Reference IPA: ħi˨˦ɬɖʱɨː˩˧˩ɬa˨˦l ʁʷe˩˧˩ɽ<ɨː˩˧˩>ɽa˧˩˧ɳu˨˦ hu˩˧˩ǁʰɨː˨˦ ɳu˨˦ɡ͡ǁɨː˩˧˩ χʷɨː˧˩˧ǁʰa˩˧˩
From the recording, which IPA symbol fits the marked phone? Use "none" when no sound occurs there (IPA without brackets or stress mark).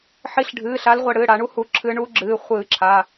ɨː˩˧˩